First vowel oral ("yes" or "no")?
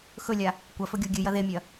yes